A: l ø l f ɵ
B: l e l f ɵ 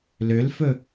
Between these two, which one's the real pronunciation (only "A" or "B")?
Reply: A